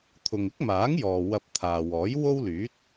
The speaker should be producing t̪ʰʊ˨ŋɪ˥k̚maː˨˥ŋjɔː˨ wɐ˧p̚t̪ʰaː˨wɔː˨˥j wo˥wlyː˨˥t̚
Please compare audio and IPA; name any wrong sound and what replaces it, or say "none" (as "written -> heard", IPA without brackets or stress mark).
none